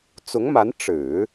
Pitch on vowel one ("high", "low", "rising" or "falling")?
rising